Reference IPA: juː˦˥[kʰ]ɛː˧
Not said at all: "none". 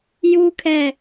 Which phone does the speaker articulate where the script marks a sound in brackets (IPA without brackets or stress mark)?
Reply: kʰ